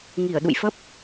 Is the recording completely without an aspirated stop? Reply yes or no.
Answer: yes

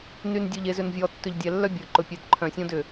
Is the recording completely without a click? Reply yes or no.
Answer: no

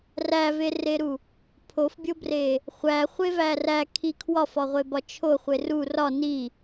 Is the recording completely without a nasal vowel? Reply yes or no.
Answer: yes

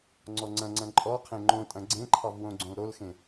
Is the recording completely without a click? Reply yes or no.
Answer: no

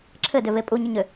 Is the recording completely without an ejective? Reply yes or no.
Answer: no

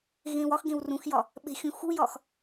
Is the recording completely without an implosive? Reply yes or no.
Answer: no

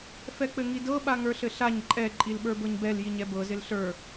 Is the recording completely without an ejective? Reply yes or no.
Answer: no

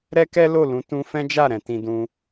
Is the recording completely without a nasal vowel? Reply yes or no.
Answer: no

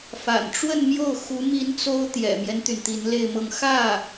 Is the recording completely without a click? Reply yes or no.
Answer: yes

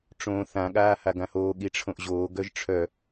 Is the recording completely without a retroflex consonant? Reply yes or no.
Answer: no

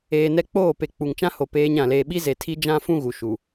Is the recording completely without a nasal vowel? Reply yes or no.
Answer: no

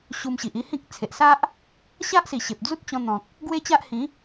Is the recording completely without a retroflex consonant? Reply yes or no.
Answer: yes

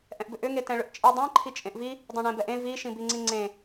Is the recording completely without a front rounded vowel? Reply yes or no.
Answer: no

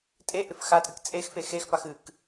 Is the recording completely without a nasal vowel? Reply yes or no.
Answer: yes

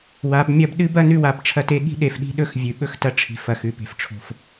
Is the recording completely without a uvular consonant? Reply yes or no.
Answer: yes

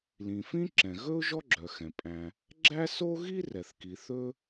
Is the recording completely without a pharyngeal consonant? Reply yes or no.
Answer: yes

